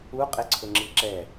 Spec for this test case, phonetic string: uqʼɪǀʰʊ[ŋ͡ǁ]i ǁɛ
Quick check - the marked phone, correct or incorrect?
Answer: correct